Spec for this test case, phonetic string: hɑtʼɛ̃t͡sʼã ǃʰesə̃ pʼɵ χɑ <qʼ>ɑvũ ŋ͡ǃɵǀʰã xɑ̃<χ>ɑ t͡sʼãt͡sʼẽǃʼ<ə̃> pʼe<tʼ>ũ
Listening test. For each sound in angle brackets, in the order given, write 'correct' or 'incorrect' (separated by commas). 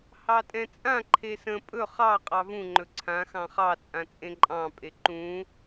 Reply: correct, correct, incorrect, incorrect